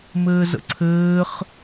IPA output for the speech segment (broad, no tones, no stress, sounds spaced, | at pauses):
m ɘː z ə̰ ǀʰ ɘː χ